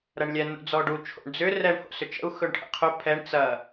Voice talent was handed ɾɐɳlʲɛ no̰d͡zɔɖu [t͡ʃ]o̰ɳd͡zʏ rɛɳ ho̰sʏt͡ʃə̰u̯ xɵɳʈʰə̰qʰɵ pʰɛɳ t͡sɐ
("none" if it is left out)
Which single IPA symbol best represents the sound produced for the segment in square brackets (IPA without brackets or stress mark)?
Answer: t͡ʃʰ